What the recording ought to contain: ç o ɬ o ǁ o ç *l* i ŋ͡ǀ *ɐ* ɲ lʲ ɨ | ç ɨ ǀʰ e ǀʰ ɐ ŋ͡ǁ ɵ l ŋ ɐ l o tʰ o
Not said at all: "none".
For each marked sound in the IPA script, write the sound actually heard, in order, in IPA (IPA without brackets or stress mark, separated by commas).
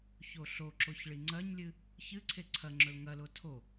ɭ, ɐ